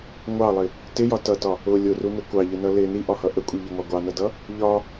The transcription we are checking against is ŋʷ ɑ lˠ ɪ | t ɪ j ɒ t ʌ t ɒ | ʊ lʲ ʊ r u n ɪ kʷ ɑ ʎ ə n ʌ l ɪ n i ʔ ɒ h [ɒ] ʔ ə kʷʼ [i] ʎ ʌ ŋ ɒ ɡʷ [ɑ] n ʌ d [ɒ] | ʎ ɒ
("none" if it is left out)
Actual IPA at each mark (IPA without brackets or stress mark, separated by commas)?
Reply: ʌ, i, ɑ, ʌ